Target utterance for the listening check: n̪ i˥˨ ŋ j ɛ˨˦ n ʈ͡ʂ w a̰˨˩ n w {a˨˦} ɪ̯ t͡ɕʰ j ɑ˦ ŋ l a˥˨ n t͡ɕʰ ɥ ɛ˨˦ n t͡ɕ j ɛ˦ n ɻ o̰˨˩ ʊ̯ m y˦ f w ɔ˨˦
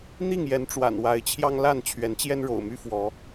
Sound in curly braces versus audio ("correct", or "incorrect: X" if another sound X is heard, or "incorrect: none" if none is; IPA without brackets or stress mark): correct